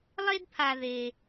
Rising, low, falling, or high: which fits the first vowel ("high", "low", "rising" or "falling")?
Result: high